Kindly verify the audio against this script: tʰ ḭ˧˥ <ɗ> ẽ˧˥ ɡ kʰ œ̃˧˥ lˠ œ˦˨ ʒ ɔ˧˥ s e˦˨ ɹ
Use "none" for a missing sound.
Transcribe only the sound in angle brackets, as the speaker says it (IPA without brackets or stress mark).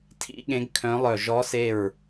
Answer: ɠ